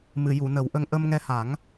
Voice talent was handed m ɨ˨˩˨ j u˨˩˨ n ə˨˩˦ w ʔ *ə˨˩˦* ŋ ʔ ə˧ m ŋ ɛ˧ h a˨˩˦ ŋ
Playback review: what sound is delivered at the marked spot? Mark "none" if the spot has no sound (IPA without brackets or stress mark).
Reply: ə˧